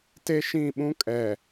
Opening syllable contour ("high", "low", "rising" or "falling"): high